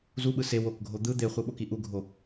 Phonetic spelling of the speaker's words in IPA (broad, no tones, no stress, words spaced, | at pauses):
zuɓɯ se wokɡʱo d̪ɯ d̪eχʷɯɓoki ʔuɡʱo